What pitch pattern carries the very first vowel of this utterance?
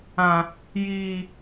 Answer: high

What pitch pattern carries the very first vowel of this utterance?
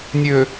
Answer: low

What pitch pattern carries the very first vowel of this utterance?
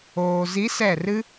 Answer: low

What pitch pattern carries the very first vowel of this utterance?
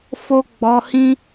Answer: high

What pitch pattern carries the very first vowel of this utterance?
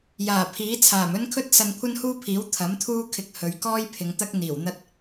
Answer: low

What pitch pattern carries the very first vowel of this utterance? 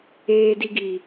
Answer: low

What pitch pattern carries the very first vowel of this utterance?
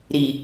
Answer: low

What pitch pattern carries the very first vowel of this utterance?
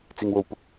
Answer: low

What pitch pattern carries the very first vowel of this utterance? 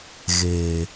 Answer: low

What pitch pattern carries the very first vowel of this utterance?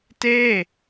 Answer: falling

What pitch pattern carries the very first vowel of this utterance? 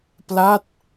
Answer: falling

